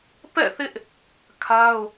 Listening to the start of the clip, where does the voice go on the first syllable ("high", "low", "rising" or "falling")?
falling